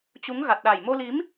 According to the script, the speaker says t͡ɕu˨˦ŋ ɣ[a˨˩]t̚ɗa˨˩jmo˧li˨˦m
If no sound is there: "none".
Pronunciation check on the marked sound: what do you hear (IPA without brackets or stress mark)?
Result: a˨˩